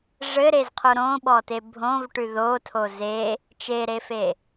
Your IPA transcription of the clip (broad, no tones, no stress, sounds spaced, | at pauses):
ʐ ɘ ɾ e z qʰ o ɾ õ ɓ ɔ t e bʱ õ v ʈ ʉ ð o tʰ o z e | t͡ʃ e ɾ e f e